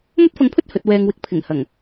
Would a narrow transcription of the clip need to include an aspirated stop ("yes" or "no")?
yes